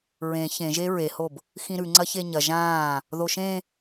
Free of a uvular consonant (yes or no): yes